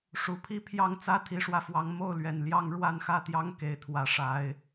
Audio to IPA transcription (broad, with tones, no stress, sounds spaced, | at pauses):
ʂ u˨˩ pʰ i˦ pʰ j ɑ˥˨ ŋ t͡s ä˦ t̪ʰ i˨˦ ʂ w ä˧ f w ɑ˨˦ ŋ m o˥˨ ʊ̯ l ɥ ɛ˨˩ n l j ɑ˦ ŋ ɻ w a˥˨ n x ä˥˨ t̪ j ɑ˦ ŋ k e˨˦ ɪ̯ t̪ʰ w ä˨˦ ʂ a˨˦ ɪ̯